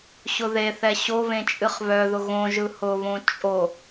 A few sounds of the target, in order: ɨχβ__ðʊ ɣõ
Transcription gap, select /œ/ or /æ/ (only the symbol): œ